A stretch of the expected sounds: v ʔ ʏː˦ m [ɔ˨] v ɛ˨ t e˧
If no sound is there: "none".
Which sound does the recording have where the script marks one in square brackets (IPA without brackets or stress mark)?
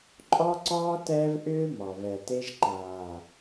ɔ˨